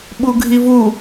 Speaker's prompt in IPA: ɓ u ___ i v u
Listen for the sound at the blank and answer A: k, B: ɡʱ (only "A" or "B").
B